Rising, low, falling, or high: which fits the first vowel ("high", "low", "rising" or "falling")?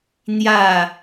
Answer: falling